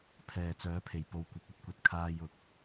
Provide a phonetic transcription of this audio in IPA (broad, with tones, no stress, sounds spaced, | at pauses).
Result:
pʰ ɛː˨ t͡s œː˨˥ pʰ e˨ j p o˧ w kʷ ɪ˨˥ k̚ ɵ˥ t̚ kʷ ɐ˨ t̚ kʰ aː˧ j ʊ˨˥ k̚